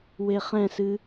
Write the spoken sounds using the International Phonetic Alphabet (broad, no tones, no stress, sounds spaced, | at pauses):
w e χ ɛ̃ s ɨ